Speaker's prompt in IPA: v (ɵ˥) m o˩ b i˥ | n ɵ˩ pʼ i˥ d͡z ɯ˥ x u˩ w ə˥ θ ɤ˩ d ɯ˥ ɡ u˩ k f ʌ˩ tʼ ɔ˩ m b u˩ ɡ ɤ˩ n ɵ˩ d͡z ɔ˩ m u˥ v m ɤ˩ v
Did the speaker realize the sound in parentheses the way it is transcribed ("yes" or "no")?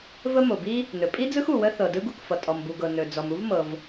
no